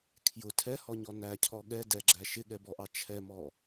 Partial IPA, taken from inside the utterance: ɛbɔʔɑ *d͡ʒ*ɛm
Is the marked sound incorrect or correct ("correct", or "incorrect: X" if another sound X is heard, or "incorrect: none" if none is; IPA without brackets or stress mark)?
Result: incorrect: t͡ʃʰ